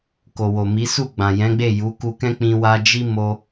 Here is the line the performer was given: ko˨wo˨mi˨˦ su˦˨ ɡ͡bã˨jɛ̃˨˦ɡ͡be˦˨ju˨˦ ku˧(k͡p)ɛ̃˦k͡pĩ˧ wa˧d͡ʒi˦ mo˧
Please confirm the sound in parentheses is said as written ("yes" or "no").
no